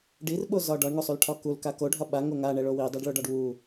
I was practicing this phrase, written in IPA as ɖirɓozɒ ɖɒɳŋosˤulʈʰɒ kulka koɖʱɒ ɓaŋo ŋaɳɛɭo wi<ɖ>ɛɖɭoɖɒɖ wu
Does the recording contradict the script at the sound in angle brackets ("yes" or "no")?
yes